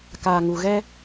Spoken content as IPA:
k aː˨ ŋ u˨ ɣ ɛ˦

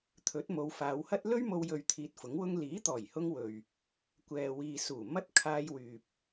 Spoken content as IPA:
t̪ʰ ɵ˨˥ t̚ m o˨˧ w f aː˨˧ w h ɐ˥ t̚ l ɵ˥ ɥ m o˧ w j ɵ˧ ɥ t̪ʰ iː˧ t̚ f ʊ˨˥ ŋ w ʊ˥ ŋ l iː˨˥ t̪ ɔː˨˩ j h ʊ˧ ŋ w ɵ˨ ɥ | kʷ ɛː˨ w iː˨ s uː˨˩ m ɐ˥ t̚ kʰ aː˧ j w yː˨ p̚

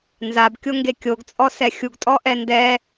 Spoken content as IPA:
n z a b kʲ o ŋ ɡ e kʲ o ɡ t͡sʼ ɔ s ɛ xʲ u ɡ tʼ ɔ ʔ ɛ n d ɛ

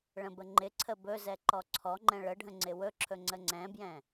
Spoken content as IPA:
ɭ ə̃ b ə ŋ͡ǃ ɪ ǀʰ ə b ɵ z ɛ ǃ ɔ ǀʰ ɔ ŋ͡ǃ ɛ̃ ɭ ə ɖʱ ə̃ ŋ͡ǀ ɪ w ɵ ǁʰ ɵ ŋ͡ǀ ə ŋ͡ǀ ɛ̃ b j ɛ̃

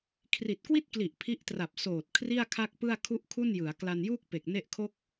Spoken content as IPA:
kʰ r i˨˩ t̚ k w i˥˩ t̚ k l i˨˩ ʔ pʰ i˦˥ ʔ t r a˨˩ p̚ s oː˨˩ t̚ kʰ r i˥˩ a̯ kʰ a˥˩ k̚ p ɯ˥˩ a̯ kʰ u˥˩ ʔ kʰ u˥˩ n j ɯ˩˦ a̯ k l a˧ n j uː˥˩ k̚ p e˨˩ k̚ n e˥˩ ʔ kʰ o˥˩ k̚

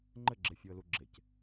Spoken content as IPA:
ŋ͡ǃ ɘ ɡ͡ǁ e fʲ u ə̯ l u ɡ͡ǁ e c

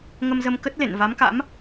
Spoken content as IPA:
ŋ ə˧ m z ə˧ m k ə˦˥ t̚ l ḛ˧˨ n v a˨˦ m k a̰˧˥ m

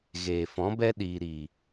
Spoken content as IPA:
ɣ eː˨ f ɔ̃˨˦ b ɛ˦ ɗ iː˨ ɾ i˨

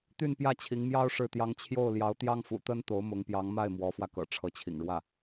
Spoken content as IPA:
t̪ y˥˧ n p j ä˥˩ t͡ɕʰ i˧˥ ŋ m j ɑ˥ ʊ̯ ʂ ɻ̩˥˩ t̪ j ɑ˥ ŋ t͡ɕʰ j o˥˩ ʊ̯ l j ɑ˧˥ ʊ̯ t̪ j ɑ˥ ŋ f ṵ˨˩ t̪ ə˥ n t̪ o˧˥ ʊ̯ m ʊ˧˥ ŋ p j ɑ˧˥ ŋ m a˥˩ ɪ̯ m w ɔ˧˥ f w ä˧ k ɤ̰˨˩ ʈ͡ʂʰ ɤ˧˥ t͡ɕʰ ḭ˨˩ ŋ ɻ w ä˥˩

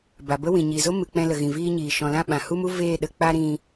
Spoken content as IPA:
b a˨ b ə˦ w ĩ˨ ɲ i˨ z o˦ m ɨ˨ k͡p ɛ̃˧ l ə˨ ɣ ĩ˨ v iː˧ ɲ iː˨ ʃ ɔ̃˨ l ã˦˨ ɓ ã˨ h u˦ m u˦ v eː˦˨ ɗ ə˧ k͡p a˦ ɾ ĩ˧

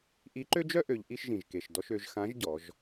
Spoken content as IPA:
ʔ i˧˥ ǃ ø˥ d͡ʒ œ˥ ʔ ø˩˧ ʎ ʔ i˧ ʃ ʒ ĩ˩ ʒ k e˩ ʃ d ɔ˧ ʃ ø˩˧ ʒ x ã˧˥ ʒ ɟ ɔ˩˧ ʒ

